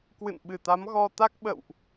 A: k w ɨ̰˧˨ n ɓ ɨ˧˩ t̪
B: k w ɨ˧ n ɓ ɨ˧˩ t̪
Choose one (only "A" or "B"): A